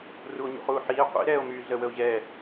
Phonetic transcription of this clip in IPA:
r u o̯ ɲ ṵ χ uː ħ iː qʷ ḭ ɾ ɛː o̯ m yː ɮ ə w ə o̯ ʑ ɛː

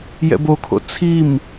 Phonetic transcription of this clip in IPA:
j ɛ̰ b o kʰ o̰ t͡sʰ i m

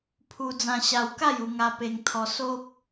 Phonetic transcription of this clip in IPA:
pʰ u˧ d͡z ã˧ ɕ a˧ w k a˥˧ j u˧ ŋ a˧ p e˧ ŋ t̪ʰ ɔ˧ s o˦ p̚

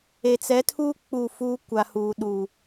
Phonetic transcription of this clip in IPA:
e˨ t͡s ɛ˨˦ tʰ uː˦ k͡p u˦˨ f uː˦ kʷ a˨ h uː˨ ɗ uː˨

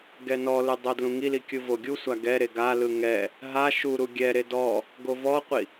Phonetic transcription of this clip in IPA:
ɡ ɛ n ɔ l ɯ dˤ o d l ũ ŋ i l i kʲ ɯ v o ɡʲ u sʷ a ɡ ɛ ɾ e ɡ a l ɯ ŋ ɛ | ɦ a ʃ u ɾ u ɡʲ ɛ ɾ e d ɔ | ɡ o v ɔ qʷ i

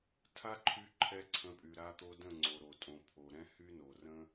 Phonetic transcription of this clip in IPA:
tʰ a˦ ǃʰ y˧ ǃʰ ɛ˧ ǀʰ ə̃˨˦ pʼ y˨ ɾ a˧ t̪ o˧ d ə̃˦˨ ŋ͡ǀ o˨ ɾ o˨ tʼ õ˨ pʰ o˨ ɾ ɛ̃˦ h y˦ n o˨ r ə̃˦

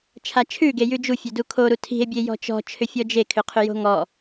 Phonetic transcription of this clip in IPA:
t͡ʃʰ a t͡ʃʰ ʉ ɡ e j ʉ d͡ʒ u fʲ ø d u kʰ o ɾ u tʰ i̤ e̯ bʲ e j ɔ̤ t͡ʃ ɔ̤ t͡ʃʰ ʏ fʲ ɔ d͡ʒ e kʰ ʏ qʰ ʏ j o̤ ŋ ɔ

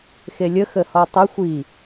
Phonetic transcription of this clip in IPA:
x e lʲ ə x ə h ɔ tˤ ə xʷ i

